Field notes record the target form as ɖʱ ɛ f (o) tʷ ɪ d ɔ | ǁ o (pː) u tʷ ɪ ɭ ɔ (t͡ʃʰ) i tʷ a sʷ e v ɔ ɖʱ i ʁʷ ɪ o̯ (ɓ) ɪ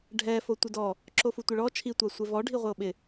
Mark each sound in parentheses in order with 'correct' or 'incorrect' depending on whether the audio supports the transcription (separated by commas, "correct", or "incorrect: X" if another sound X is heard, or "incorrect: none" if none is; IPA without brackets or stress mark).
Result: correct, incorrect: f, correct, correct